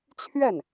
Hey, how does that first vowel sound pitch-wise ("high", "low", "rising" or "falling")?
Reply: falling